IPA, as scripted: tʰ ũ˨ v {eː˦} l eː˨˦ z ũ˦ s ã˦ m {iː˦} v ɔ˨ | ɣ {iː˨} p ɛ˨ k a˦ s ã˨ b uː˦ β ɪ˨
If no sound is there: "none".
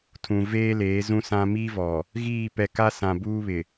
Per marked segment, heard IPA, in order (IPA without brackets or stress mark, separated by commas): eː˦, iː˦, iː˦˨